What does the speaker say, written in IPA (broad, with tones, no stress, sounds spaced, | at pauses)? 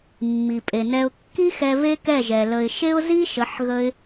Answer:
mː i˨ pʼ e˨ n ɛ˧ ʊ̯ kː i˦ x ɛ˧ β e˦ k ɛ˦˨ ʒ ɛ˨ l ə˨ ɪ̯ ʃ e˦ ʊ̯ z i˦ ʃ ə˨˦ ħ ɣ ə˧ ɪ̯